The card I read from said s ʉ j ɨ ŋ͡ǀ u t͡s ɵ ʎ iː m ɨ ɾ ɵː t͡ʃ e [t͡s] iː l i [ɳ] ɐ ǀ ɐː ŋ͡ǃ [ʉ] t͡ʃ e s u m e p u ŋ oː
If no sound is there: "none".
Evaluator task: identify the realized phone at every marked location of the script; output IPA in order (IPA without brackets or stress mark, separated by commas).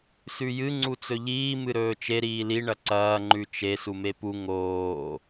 ɾ, ɳ, ʉ